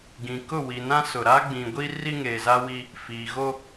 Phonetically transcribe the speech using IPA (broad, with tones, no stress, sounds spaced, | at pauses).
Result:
ɡ ĩ˨ k ʊ˦˨ w i˨ n ã˦ s ʊ˨ ɾ a˦ ɡ͡b ĩ˨ ɡʷ i˦ r i˦ ŋ eː˨ z a˦ w i˦ | f iː˨ ɣ o˦